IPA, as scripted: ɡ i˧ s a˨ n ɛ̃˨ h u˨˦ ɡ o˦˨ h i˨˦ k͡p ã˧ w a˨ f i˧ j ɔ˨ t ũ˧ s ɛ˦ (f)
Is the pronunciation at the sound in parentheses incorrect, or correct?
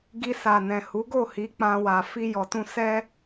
incorrect